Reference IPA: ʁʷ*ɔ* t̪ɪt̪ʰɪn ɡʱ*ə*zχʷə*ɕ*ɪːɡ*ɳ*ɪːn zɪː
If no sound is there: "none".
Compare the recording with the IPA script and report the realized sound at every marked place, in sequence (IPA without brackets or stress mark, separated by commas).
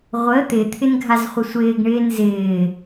ə, a, sʷ, ɳ